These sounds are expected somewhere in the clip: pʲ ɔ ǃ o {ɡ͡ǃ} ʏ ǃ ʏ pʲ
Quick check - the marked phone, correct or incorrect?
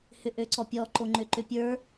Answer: incorrect: ŋ͡ǃ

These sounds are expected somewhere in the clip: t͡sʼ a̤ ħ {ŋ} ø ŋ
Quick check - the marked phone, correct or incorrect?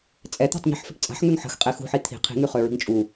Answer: correct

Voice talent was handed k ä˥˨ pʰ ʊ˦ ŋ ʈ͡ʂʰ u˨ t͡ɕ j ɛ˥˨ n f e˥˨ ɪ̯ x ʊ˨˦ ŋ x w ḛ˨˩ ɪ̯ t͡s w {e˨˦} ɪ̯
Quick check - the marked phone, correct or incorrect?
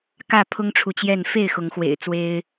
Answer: incorrect: e˦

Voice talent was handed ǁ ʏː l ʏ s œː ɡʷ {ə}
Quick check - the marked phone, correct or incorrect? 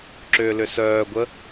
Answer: correct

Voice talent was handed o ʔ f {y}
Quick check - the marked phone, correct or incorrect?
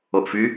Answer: correct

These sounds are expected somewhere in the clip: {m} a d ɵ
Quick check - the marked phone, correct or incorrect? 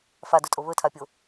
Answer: incorrect: f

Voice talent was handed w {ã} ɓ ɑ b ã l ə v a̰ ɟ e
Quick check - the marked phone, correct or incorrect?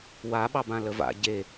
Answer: incorrect: a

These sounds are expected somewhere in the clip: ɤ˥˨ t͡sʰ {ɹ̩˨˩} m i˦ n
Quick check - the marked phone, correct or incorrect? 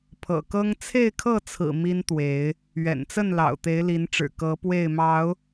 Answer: correct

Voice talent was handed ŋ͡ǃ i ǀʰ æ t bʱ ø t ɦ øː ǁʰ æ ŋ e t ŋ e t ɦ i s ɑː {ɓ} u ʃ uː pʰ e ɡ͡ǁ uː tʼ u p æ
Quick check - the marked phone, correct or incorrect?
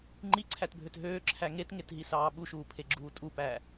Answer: correct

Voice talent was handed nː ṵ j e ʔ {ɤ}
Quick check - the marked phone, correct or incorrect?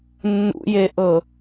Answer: correct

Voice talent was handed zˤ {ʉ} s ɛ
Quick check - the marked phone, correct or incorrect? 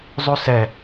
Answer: correct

